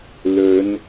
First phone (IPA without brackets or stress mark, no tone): l